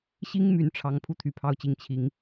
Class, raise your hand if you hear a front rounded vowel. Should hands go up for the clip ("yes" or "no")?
yes